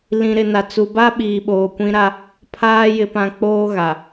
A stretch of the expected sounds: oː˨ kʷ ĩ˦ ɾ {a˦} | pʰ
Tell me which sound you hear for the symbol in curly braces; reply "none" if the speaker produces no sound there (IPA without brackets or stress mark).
a˦